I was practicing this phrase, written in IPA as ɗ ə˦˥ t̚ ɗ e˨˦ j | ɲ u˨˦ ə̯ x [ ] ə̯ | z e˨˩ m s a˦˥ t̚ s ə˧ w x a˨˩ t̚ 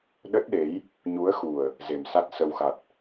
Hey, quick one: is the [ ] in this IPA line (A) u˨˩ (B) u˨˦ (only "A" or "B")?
A